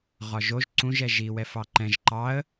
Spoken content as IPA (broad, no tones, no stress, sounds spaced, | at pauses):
ʁ ɒ ʒ o ʒ ǀ ũ ʒ ɛ ʒ i w ɛ f ɑ ǃ ɛ̃ ʒ ǃ ɑ ə̯